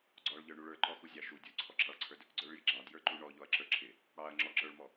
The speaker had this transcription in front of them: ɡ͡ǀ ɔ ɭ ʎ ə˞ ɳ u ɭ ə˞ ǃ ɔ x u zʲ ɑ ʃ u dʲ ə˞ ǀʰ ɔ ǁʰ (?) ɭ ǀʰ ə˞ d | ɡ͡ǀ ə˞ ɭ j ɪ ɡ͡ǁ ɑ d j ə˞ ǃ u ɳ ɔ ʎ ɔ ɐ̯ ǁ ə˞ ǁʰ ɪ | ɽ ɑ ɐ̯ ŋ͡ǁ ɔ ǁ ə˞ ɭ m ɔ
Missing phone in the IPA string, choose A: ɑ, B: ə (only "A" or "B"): A